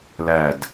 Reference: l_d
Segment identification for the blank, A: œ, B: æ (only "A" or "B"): B